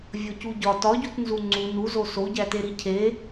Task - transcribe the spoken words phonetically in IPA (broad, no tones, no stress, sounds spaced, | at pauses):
vʲ o c u ɟ ɒ t ɒ ɟ u t n z u ŋ͡ǀ u n u z o s o ɟ æ t e ɾ i cʰ e